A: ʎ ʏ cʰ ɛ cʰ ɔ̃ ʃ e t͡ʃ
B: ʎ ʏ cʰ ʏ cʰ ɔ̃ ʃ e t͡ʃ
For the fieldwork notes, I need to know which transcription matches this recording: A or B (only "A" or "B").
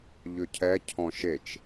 A